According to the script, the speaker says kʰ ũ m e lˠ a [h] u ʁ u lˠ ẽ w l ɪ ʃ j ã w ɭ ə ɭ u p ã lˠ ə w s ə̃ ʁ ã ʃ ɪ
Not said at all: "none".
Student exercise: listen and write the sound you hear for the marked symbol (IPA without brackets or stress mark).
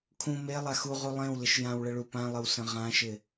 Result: x